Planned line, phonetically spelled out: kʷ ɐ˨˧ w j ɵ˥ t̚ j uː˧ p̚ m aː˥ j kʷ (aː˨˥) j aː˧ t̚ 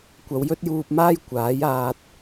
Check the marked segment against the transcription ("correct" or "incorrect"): correct